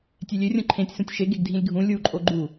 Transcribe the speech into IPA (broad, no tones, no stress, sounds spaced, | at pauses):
tʲ e lʲ ø rʲ õ ǃʰ ẽ tʲ s ũ tʲ ʃ e ɡ e ɡ dʱ ĩ lʲ ɡʱ ũ lʲ u ǃʼ o ɡ͡ǃ u